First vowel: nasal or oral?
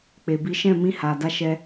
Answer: oral